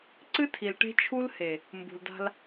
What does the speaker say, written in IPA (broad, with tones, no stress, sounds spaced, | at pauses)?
ǀ ɨ˦ tʰ i˨ l ʈ e̤˦ t͡ʃʰ u˦ l h e˨ | m b ṳ˨ l d a̤˦ l